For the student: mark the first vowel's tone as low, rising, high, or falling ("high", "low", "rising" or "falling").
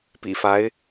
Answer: low